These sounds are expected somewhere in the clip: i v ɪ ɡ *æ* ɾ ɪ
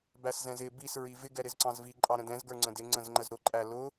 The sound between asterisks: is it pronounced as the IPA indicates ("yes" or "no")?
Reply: no